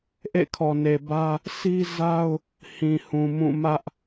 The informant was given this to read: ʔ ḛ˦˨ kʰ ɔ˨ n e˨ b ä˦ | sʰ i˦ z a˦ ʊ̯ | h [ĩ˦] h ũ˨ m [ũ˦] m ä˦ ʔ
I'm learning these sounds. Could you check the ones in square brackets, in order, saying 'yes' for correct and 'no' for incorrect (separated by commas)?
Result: no, no